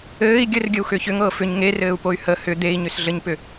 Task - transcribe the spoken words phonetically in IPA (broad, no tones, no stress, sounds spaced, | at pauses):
ɘː i̯ ɡʲ ɘ r ɡʲ ɘ u̯ x ʏː ç ʏ ŋ ɤː f ʏ ɲ ŋ e r ɘː u̯ p o y̯ h ə h ʏ d̪ e i̯ ɲ ʏ s ɮ ɘ ɲ p ʏ